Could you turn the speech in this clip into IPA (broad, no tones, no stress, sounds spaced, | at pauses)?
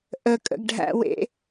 ʔ ə kʼ ə̰ ɡ ɖʱ æ̰ w ḛ